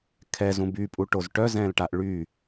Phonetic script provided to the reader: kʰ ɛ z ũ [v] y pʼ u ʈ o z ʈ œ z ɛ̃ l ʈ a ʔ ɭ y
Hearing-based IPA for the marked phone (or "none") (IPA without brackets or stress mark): b